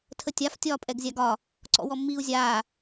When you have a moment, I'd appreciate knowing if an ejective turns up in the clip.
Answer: yes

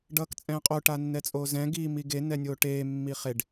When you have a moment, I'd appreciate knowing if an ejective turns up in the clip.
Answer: yes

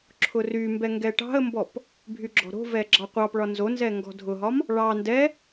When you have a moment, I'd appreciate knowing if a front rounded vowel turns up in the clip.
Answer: yes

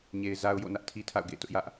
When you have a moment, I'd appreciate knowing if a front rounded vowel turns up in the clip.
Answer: no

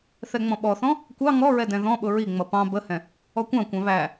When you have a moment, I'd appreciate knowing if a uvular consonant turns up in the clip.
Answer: no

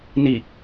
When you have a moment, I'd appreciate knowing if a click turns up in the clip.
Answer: no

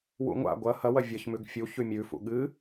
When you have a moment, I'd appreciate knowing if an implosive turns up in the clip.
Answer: yes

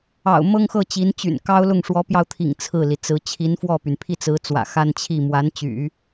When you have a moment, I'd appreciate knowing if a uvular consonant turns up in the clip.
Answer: no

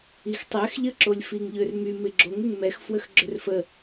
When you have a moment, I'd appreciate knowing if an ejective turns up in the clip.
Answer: no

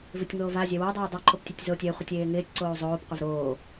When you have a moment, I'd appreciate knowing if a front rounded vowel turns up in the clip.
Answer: no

